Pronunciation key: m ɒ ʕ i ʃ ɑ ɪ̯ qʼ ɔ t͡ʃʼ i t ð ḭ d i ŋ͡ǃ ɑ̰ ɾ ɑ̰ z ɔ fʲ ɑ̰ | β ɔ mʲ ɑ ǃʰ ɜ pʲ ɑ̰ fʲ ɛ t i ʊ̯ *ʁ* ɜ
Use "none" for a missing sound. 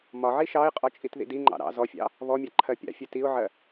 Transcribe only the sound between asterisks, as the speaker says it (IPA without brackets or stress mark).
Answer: ʕ